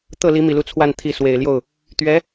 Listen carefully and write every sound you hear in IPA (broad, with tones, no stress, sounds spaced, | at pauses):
t̪ ɤ˥˩ l i˧˥ m i˨˩ l u˧˥ t͡sʰ w a˥˩ n t̪ʰ i˧˥ s w e˨˩ ɪ̯ l j o˥˩ ʊ̯ | t̪ ɥ ɛ˧˥